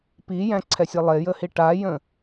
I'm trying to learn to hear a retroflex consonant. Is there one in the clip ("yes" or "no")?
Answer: yes